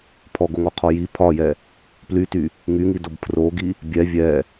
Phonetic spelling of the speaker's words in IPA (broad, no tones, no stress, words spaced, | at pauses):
pʰɔɡoŋɔqʰɔ ji pʰɒjɛ | plyty | ŋyŋidob pʰroɡi | bʲɛ vʲɛ